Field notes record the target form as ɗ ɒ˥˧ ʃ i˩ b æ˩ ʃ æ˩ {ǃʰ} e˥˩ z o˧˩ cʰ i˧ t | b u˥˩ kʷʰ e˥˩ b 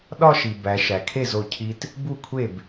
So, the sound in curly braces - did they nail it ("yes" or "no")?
no